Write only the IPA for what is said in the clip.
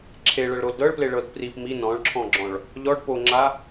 ǁʰ e ɭ ɤ ɭ ɾ o l d ɤ ɭ p l e ɭ ɤ d p r i p m i n ɔ̃ ɭ ǁʰ ɔ̃ ɡ͡ǁ ɔ̃ ɭ | ʎ ɔ ɖ p o ŋ͡ǁ a

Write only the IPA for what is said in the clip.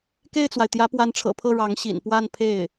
k e˥˩ ɪ̯ t͡s w a˩ ɪ̯ t̪ j ä˧˥ p w a˧˥ n ʈ͡ʂʰ ɤ̰˨˩ pʰ ɤ˥˩ ɻ ɑ˧˥ ŋ ɕ ḭ˨˩ n p w a˥˧ n pʰ e˥˩ ɪ̯

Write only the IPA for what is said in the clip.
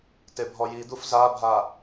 t e bʱ ɔ j i d̪ u f z a bʱ a

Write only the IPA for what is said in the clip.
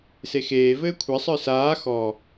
s e x eː v ɘː kʷʰ ɛ sˤ ə˞ s aː x ɔ

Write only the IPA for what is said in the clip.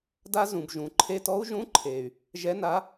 d a˥ z ũ˩ b ʒ ũ˩ ǃʰ e˧˥˧ t ɔ˥ u̯ ʒ ũ˧˥˧ ǃʰ eː˩ y̯ | ʒ ɛ˨˥ n a˨˥

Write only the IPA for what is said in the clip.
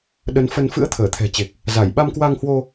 ɗ ə˨˦ n f ə˧ n f ɨ̰˧˥ ə̯ t̪ʰ əː˧˩ t̪ʰ ɛ̤˨˩ t͡ɕ e˨˩ k̚ | z a˧˩ j ɓ a˧ m k w a˧ ŋ h w o˧

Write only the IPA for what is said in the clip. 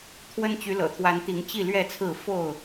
t̪ʰ w ə˦ n t͡ɕ y˨˦ l ɤ̰˨˩ t̪ʰ w a˨˦ n t̪ i˨˦ ŋ t͡ɕ i˥˨ l ɥ ɛ˥˨ t͡sʰ ɹ̩˥˨ f o˥˨ ʊ̯

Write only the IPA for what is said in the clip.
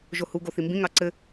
ʒ o h u ɡ o θ i m b ĩ ŋ ɑ ǀ ɘ

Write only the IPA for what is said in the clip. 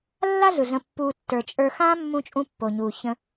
lː a˥ ɮ ɯ˩ ɮ ə̃˨ pː uː˨ tː ə˞˩ t͡ʃʼ ə˞˨ x ãː˦ mː ũ˦ t͡ʃʼ ũ˦ pː o˩ ɲ uː˩ ç ə̃˨

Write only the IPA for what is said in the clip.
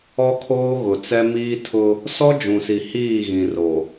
ɔ˦ kʰ oː˦ ɣ ʊ˨ t͡s ɛ˦ m iː˦ tʰ ʊ˦ | s ɔ˦ d͡ʒ ũ˨ s i˨ h iː˦˨ ɣ ĩ˨ r o˨

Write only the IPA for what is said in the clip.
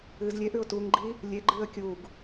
ɨː z lʲ e ʔ ʉ ʊ̯ t u ŋ ɡ͡ǃ i | lʲ e ɡ͡ǃ ɨː ə̯ kʲ u ɡ

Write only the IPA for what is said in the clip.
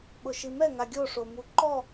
ɓ ʊ ʃ i m ɛ ŋ a ɡʲ o ʂ o m u ǃ ɔ

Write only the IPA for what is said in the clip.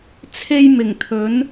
t͡sʰ e˥ j m ɪ˨˩ ŋ t̪ʰ ɵ˨˥ n

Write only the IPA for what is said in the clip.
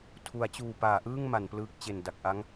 tʰ u˩˦ a̯ t͡ɕ uː˨˩ p aː˩˦ ʔ ɯː˥˩ ŋ m a˩˦ n p l ɯː˦˥ k̚ t͡ɕ e˨˩ n d a˨˩ k̚ ʔ a˦˥ ŋ

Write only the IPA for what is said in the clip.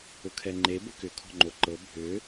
ʊ kʰ ɛ ŋ͡ǃ e b ə k ʏ kʰ ɔ̤ ŋ͡ǃ o ǃ ɤ bʱ ʏ

